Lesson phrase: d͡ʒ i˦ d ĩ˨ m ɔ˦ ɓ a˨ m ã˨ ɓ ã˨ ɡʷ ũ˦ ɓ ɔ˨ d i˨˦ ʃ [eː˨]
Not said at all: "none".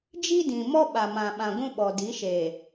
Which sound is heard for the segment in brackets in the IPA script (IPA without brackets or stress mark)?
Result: eː˨